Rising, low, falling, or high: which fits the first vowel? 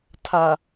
low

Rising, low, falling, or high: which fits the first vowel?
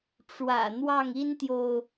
low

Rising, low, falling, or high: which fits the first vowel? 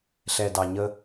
low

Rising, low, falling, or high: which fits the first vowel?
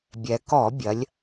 low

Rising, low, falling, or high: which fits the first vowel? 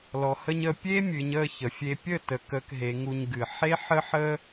low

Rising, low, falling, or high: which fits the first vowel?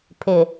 low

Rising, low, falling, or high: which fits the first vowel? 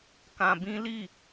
low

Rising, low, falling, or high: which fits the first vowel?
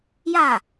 falling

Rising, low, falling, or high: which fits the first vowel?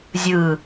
falling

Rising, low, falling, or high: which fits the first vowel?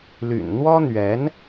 low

